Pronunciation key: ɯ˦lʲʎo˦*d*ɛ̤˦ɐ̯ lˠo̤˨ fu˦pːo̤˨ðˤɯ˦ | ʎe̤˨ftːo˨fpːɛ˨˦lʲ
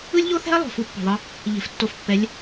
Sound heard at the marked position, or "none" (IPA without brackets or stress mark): θ